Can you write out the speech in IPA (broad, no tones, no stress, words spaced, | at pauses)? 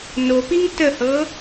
nopiŋ təhɤ